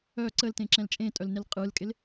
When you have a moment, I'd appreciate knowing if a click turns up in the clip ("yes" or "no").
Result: yes